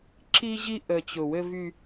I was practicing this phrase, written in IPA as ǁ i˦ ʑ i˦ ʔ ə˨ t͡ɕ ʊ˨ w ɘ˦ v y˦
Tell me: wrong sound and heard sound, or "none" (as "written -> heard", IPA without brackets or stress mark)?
none